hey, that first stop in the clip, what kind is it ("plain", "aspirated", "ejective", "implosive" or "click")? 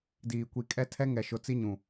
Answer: plain